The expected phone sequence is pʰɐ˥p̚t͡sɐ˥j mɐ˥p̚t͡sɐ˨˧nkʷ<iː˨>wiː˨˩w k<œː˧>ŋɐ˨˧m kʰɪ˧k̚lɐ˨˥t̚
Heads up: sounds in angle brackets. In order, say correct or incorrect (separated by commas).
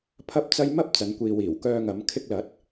correct, correct